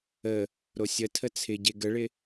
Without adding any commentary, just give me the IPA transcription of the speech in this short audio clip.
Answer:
ə | ɾosʲətʰə t͡sʰɪ ɟeɡəɭɪ

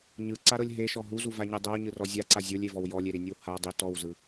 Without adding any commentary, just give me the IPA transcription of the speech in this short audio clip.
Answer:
ɲɯǀaɾɤlʲ ɦeʃɔ ɦuzuvaɲɯ dˤɤwɲɯrɔ zʲaǀa zʲolʲevɔw jɔlʲeɾinʲɯw ha dˤi tɔwzɯ

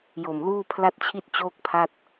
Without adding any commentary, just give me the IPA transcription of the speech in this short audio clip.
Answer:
jo˨˩mluː˥˩ pʰla˥˩t̚t͡ɕʰi˥˩t̚ t͡ɕoː˥˩k̚pʰa˥˩t̚

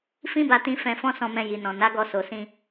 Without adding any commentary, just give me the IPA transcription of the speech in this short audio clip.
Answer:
fĩ˦ba˧tĩ˧ fɛ̃˧ fɔ̃˦sɔ̃˧mɛ̃˧ ji˨nɔ̃˨ na˨˦ɡɔ˧ so˨sĩ˧

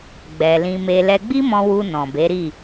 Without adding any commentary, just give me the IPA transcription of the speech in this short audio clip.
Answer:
ɡ͡bɛ˧ lĩ˧me˧ lɛ˧ɡ͡bi˦mɔ̃˧ wu˧ nɔ̃˨be˨˦ɾi˦˨

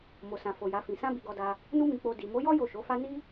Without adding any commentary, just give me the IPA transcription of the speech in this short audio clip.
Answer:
mo˨sã˨fo˨ ja˨˦fĩ˧ sã˦bi˧ɡɔ˧da˧ | nu˦mĩ˧ k͡po˧ di˨mo˨˦jɔ˦ jo˦˨ʃo˨˦fa˦ ni˦

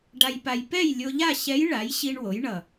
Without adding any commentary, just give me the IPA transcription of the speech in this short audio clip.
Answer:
ɖa˧jpa˧j pɛ˥˨jlʲo˧ʎa˥˨ ɕɛ˧˥jɭa˩˥jɕi˧ɳ wo˩˥jɳʌ˨˩

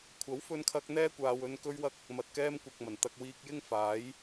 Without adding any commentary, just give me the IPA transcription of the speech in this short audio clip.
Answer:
kʷʰɐ˨˥wfɵ˧nkʰɐ˧k̚ n̪ɛː˥kʷaː˧wɵ˧n kɵ˧ɥwɐ˧k̚ | mɐ˨t̚kɛː˧mkʷɐ˨k̚mɐ˨˩n t̪ɐ˧k̚wiː˧k̚jɪ˥ŋfaː˨˥j

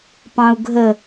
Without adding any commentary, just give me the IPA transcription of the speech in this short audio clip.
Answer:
pɑ̃u̯ɡʱə

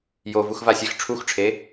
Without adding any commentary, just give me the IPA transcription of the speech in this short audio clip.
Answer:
jovuxvasʲɛx ʈ͡ʂʰuxʈ͡ʂʰe

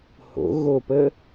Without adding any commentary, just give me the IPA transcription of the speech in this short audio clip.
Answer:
ho̰ɣopə

